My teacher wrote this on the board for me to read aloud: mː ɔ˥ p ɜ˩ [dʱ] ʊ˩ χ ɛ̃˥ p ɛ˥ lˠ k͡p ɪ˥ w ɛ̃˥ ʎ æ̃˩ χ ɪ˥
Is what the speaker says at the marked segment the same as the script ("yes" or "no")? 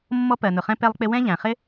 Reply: no